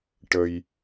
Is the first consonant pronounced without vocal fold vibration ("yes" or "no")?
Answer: yes